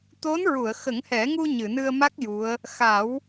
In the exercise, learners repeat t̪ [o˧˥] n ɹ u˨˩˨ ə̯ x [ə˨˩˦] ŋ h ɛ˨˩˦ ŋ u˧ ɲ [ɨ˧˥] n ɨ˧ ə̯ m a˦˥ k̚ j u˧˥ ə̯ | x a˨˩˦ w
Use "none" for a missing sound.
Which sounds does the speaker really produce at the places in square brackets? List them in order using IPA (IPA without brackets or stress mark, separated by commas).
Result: o˧˥, ə˨˩˦, ɨ˨˩˨